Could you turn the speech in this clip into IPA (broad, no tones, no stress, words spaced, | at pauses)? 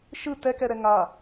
ʃɯ tɛkɛɾɛ ŋa